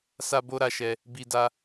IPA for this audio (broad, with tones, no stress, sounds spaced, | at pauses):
s a˦ b o˦ ɾ a˧ ʃ ɛ˧ | b i˧ d a˧